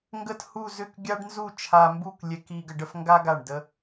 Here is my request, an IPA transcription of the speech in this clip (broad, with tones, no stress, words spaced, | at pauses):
ŋɡə˥˧thu˥˧zʏ˥˧k ɡʲa˥ɖnzu˥˧t͡ʃʰa˧mbu˥˧k lʲɛ˧ki˧ ɡə˧ɖə˥˧fŋɡa˥ ɡa˧˩ɳdə˧